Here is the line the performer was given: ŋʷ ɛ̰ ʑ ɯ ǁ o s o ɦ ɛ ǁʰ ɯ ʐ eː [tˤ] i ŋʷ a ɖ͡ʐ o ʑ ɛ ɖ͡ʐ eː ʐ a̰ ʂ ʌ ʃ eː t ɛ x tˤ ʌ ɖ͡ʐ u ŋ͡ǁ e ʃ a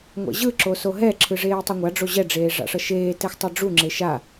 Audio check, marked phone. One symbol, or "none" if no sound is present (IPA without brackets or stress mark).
tˤ